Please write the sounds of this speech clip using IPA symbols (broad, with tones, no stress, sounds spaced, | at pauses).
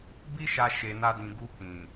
b i˦ ʃ a˧ ʃ e˧ n a˦ d ĩ˧ ɡ u˧ k ĩ˨